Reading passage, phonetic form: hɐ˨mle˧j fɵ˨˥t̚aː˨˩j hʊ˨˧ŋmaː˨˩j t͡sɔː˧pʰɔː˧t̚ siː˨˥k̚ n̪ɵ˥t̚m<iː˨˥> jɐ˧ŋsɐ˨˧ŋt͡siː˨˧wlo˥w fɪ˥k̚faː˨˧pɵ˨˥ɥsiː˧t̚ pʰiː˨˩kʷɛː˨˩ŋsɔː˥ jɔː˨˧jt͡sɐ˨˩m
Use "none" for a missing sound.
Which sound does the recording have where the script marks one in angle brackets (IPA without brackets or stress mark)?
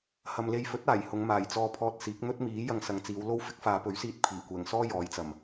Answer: iː˨˥